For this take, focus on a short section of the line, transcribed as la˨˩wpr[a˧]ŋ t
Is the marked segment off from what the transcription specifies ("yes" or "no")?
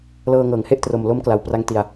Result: no